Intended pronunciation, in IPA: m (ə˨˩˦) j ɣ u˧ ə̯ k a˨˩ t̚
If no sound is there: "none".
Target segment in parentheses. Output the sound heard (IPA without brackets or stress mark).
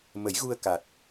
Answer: ə˨˩˦